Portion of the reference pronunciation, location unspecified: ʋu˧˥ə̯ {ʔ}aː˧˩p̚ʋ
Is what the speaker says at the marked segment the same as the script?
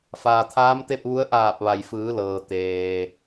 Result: yes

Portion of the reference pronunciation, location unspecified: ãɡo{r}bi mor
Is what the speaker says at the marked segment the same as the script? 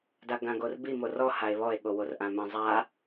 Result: yes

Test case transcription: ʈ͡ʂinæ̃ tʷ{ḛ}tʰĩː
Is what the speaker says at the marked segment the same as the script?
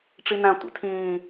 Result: yes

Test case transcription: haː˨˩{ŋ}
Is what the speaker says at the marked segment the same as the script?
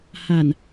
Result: no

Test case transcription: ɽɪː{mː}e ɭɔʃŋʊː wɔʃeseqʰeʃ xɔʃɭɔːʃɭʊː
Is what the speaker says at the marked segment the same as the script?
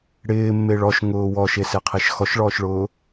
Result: yes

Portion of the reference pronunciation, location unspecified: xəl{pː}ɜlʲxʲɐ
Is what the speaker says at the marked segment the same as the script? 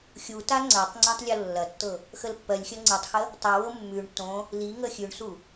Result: yes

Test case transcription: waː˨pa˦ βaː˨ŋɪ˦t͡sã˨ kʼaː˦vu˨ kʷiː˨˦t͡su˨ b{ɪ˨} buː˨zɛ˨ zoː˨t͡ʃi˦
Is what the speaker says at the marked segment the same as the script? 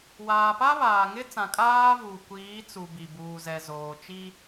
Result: no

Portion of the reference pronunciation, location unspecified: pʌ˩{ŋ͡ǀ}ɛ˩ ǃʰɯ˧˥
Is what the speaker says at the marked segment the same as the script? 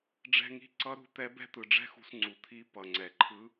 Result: yes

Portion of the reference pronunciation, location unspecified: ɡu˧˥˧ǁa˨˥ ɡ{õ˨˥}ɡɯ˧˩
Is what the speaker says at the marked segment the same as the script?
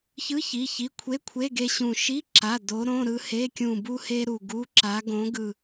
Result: yes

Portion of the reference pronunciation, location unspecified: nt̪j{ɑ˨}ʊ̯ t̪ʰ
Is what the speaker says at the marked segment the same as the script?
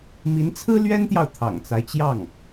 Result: yes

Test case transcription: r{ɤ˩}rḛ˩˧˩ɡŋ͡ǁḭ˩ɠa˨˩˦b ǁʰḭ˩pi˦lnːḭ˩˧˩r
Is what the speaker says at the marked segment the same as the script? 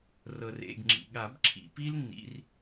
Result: yes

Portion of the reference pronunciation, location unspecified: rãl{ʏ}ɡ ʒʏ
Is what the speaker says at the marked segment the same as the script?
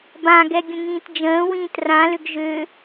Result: yes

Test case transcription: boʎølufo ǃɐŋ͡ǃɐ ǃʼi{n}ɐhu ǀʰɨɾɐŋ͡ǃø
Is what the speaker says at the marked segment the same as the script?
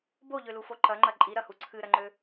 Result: no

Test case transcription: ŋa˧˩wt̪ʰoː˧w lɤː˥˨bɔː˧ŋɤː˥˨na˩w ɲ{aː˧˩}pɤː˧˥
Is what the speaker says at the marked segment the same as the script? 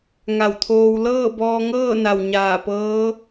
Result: yes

